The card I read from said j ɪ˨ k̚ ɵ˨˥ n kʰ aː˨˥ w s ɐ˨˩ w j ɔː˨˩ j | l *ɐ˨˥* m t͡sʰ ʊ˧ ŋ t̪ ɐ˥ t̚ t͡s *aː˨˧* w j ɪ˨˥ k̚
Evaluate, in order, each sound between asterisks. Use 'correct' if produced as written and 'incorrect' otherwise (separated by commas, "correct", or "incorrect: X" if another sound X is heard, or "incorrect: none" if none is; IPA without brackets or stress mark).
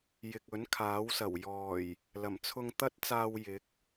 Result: incorrect: ɐ˨˩, incorrect: aː˧